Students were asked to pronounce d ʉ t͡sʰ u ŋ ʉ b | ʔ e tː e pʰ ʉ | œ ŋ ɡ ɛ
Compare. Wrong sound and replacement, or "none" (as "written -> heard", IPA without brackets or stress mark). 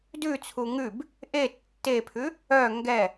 none